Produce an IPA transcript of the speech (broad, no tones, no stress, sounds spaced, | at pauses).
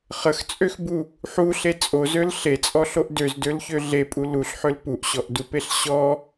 χ ə x t͡sʼ ø x b u | ħ u ɬ e t͡sʼ o z ø l ɬ e t͡sʼ ɔ ɬ o ʔ d ø z d ø l ç ø ɮ e pʼ u l u ɬ ħ ø l p u ʔ ɕ ɔ ʔ d u p e ɬ ɕ ɔ